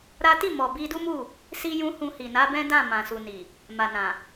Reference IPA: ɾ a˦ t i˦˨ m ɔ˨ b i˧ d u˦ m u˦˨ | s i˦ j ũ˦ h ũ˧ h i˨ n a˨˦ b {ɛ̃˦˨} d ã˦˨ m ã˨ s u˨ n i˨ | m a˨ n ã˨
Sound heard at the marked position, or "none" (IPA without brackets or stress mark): ɛ̃˦